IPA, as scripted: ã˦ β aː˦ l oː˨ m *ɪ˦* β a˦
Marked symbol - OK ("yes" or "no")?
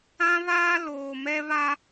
no